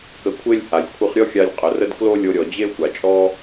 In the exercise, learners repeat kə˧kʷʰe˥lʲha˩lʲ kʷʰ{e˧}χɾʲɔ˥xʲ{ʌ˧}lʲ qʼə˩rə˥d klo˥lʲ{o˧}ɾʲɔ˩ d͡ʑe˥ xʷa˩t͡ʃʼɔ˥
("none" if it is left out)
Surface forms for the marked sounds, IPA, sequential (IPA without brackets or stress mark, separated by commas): ɨ˧, a˧, o˧